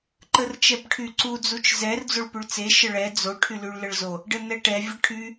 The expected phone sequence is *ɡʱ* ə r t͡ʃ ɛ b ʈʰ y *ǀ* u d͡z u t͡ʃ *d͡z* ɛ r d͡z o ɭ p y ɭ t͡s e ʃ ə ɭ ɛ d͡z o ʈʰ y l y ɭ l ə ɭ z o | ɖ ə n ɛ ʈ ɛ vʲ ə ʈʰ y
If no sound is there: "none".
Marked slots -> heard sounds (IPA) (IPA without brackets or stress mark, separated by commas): ǃ, ǀ, z